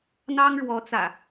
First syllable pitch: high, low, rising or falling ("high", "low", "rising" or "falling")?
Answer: high